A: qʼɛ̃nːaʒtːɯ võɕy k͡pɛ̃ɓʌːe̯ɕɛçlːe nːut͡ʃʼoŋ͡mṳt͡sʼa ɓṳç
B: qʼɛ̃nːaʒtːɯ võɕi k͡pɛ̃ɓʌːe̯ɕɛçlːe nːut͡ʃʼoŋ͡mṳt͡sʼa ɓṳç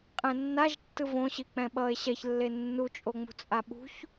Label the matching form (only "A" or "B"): B